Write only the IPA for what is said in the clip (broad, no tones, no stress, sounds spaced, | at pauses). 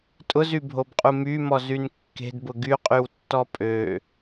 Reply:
tʼ ʊ z y bʱ o b qʼ u m y m ɔ z y n kː e̤ d b ʊ ɡ y qʼ y w tː ɔ pʼ ø